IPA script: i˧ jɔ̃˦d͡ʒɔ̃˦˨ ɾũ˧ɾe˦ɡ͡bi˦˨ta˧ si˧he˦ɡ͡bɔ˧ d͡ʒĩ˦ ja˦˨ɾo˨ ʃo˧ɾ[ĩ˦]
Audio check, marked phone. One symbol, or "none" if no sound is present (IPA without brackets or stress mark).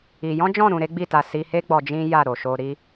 i˦